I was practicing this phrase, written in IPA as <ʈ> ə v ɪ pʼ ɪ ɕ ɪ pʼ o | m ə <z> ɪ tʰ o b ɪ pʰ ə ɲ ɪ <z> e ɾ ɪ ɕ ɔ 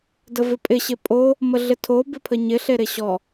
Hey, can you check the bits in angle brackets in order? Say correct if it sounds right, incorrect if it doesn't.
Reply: incorrect: d, incorrect: ɮ, incorrect: ɬ

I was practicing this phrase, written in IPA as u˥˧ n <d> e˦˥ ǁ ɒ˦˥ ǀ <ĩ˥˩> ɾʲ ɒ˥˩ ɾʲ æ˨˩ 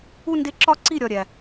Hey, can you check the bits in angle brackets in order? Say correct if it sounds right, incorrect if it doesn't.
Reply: correct, incorrect: i˥˩

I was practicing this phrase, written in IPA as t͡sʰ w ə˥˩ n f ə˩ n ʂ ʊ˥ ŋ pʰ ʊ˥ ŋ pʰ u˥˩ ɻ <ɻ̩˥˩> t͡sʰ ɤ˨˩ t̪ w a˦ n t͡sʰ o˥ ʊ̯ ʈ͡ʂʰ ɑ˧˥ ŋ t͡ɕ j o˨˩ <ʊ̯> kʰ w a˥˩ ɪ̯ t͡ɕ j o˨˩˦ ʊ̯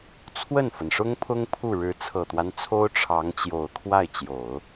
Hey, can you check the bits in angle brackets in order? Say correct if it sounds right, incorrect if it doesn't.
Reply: incorrect: ɻ̩˧˥, correct

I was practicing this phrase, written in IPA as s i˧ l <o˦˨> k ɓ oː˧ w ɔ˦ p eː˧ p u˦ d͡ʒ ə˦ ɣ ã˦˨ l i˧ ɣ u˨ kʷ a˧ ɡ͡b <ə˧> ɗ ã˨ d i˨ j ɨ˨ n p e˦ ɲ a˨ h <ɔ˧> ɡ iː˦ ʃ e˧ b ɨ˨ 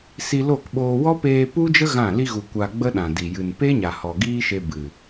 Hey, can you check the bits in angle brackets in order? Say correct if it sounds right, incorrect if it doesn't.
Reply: correct, incorrect: ə˦, incorrect: ɔ˨

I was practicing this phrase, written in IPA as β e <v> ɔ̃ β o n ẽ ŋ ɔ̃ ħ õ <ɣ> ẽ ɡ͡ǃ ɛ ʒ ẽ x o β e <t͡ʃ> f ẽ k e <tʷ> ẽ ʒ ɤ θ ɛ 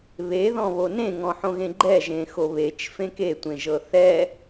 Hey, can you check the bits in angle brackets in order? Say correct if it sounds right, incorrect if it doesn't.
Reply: incorrect: ð, correct, correct, correct

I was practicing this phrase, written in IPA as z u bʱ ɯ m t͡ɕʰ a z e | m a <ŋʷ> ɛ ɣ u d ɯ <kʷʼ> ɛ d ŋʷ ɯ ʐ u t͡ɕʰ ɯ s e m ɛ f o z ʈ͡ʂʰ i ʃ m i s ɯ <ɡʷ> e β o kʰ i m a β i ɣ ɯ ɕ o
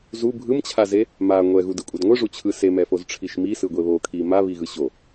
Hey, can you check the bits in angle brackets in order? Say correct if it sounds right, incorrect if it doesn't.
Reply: correct, correct, correct

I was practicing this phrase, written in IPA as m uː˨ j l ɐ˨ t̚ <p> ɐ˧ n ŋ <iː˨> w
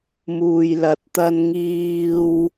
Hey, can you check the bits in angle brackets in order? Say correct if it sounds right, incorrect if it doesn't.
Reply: incorrect: t̪, correct

